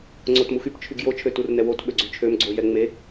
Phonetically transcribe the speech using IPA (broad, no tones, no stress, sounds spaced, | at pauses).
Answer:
ŋ͡ǀ o t m u x y p t͡ʃʰ y ɡ j o t͡ʃʰ ø t u r n ɛ w o t ɓ ø ɡ͡ǀ y t͡ʃʰ ø m ɡ͡ǀ o j ɛ ŋ͡m e